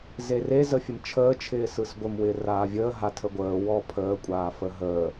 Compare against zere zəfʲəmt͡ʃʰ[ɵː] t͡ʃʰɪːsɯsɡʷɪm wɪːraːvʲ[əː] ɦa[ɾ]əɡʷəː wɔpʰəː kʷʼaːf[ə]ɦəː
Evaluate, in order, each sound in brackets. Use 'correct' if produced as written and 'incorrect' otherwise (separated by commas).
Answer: incorrect, correct, incorrect, correct